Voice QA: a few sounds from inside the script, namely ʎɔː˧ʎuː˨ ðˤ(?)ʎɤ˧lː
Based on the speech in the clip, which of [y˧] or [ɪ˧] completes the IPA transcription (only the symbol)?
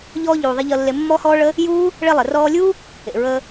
ɪ˧